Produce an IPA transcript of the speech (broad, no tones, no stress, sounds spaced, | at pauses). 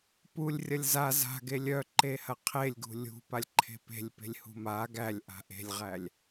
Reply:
p u lʲ rʲ ɐ lʲ z a z a̤ ɡ e lʲ œ ǃ e h ɐ qʰ e lʲ ɡ ṳ lʲ ṳ p a lʲ ǃʰ e̤ p e̤ lʲ p e̤ lʲ h ṳ m a ɡ æ lʲ ʔ a̤ ʔ e̤ lʲ ʁ æ lʲ